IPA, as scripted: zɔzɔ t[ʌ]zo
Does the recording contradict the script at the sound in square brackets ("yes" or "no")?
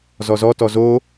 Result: yes